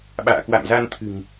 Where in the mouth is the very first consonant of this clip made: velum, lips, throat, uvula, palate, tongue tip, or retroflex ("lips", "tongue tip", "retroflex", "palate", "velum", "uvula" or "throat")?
lips